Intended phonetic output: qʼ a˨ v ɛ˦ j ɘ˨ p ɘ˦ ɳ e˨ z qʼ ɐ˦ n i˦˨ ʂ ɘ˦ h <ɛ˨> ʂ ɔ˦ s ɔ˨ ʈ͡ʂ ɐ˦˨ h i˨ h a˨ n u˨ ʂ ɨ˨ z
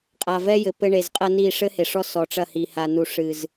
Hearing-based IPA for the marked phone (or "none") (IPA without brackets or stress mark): e˨